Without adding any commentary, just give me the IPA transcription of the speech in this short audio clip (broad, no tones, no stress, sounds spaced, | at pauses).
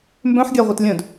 m b œ̃ ħ ɡʲ a ʁʷ ɛ t lʲ œ̃ d